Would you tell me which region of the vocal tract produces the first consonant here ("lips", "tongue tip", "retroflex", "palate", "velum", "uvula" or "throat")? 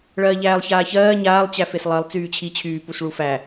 retroflex